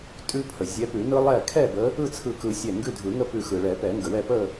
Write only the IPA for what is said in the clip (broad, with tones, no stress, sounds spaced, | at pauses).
tʼ ʉ˦˥ pʰ ə˩ zʲ ɛ˨˦ p ʉ˨˩˦ n ɯ˦˥ lˠ ɛ˥˨ kʰ ɛ˥˨ b ə˨˦ | ɯ˥˨ t͡sʰ ɯ˧˩ k ɯ˨˩˦ sʲ ɛ˧˩ ŋ ɡ ʉ˥˨ dʱ ɯ˨˩˦ ŋ ə˥˨ p ʉ˧˩ x ɯ˩ ɭ ɛ˨˩˦ p ɛ˨˩˦ ŋ ɡ ə˩ w ɛ˥˨ p ə˥˨